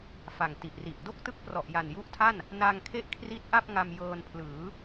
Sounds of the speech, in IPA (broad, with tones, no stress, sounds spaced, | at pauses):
f a˨˩ ŋ t i˨˩ ʔ r i˨˩ ʔ d o˥˩ k̚ t ɯ˦˥ k̚ p r ɔ˨˩ ʔ j a˨˩ n j u˦˥ ʔ tʰ a˥˩ n | n a˧ ŋ kʰ e˦˥ ʔ kʰ r i˦˥ t̚ ʔ a˥˩ p̚ ŋ a˧ m j ɤː˧ n pʰ l ɯː˩˦